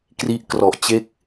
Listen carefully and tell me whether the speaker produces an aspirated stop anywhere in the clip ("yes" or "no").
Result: no